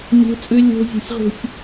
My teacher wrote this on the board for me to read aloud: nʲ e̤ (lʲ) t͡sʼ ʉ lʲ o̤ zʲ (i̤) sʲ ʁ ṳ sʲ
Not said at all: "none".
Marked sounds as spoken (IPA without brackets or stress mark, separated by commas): none, e̤